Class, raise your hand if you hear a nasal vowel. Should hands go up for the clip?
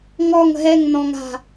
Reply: yes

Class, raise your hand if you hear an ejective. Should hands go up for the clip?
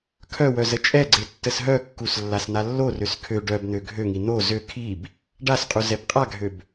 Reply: yes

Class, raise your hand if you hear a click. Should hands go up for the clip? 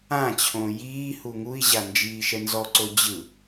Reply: yes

